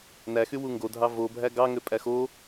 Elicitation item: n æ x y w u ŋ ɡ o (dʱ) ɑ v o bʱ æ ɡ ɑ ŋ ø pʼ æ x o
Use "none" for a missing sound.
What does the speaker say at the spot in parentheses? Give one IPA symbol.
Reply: dʱ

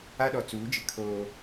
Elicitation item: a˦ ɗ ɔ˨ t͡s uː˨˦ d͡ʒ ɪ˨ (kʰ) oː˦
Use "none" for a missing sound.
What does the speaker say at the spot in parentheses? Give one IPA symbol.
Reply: kʰ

